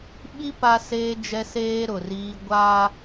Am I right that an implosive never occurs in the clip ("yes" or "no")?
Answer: no